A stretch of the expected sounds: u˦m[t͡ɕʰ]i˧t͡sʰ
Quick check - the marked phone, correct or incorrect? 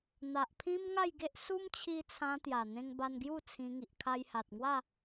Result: correct